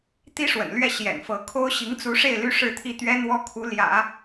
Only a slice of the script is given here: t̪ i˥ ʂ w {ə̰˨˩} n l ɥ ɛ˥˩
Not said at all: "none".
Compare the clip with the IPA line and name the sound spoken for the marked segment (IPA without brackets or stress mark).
ə̰˨˩